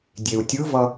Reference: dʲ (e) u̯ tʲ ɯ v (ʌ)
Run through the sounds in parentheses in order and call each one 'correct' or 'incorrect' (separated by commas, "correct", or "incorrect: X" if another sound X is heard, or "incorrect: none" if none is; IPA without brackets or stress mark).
correct, correct